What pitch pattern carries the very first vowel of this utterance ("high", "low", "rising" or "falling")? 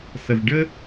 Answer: low